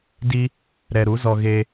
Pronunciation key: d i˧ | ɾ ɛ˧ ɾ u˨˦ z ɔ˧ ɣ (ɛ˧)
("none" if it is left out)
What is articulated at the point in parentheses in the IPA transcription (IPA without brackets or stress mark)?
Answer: e˧